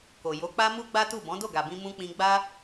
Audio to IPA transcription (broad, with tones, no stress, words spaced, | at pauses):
ko˨ jo˨˦k͡pa˦ mu˦ɡ͡ba˦ tu˦˨ bɔ̃˨˦do˦˨ɡa˨bĩ˧ mũ˧k͡pĩ˧ɡ͡ba˦